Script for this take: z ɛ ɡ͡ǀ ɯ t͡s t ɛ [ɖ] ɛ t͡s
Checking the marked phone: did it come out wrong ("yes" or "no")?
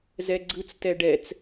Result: no